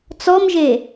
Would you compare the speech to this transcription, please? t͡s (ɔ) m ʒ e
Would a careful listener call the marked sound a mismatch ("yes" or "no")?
no